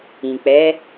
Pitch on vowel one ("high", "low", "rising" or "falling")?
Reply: low